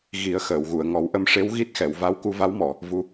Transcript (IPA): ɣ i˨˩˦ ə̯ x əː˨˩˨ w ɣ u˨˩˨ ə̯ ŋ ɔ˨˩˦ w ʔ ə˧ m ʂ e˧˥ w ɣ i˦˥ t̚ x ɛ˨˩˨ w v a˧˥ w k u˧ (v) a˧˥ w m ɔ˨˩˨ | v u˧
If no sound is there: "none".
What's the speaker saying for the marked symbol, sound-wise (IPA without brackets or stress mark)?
v